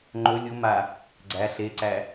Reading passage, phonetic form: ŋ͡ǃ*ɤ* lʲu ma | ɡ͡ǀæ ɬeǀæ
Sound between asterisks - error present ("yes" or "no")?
yes